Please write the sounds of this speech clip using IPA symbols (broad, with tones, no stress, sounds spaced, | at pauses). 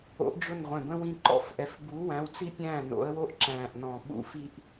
o̰˨˥ ʔ d͡ʒ ʊ˥˩ n ʁʷ ɛ̃˧˩ b ə̃˥ w ĩ˥˩ ǃ ɔ̰˥˩ f ʔ ɛ˧˩ f b u˨˥ w æ̃˨˥ w t͡s i˥ pʲ æ̃ː˥˩ n o̰˨˥ ə̯ w o˥ ʔ ǁ æ̃ː˧˩ ʔ n ɔ̃˧˩ ɓ ṵ˥ f i˥ ʔ